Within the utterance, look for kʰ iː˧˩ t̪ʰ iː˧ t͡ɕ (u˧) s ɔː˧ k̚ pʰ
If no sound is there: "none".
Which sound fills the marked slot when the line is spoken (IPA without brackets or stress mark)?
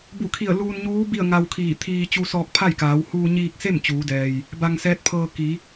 u˧